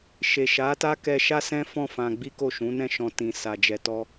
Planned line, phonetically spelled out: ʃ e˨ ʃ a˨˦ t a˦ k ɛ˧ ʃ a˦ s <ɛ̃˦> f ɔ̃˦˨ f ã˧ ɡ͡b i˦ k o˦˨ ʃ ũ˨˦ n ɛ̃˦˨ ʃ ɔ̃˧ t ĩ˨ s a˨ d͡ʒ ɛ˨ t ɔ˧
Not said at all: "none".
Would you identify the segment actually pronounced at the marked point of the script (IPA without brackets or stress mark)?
ɛ̃˦